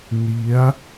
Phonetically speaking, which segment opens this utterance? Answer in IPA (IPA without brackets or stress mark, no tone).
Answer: n